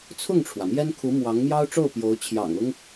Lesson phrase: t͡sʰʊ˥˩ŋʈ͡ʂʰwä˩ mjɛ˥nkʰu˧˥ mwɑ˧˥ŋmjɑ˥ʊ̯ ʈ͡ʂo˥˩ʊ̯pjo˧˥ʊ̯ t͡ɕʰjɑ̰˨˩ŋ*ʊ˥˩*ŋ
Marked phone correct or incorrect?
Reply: incorrect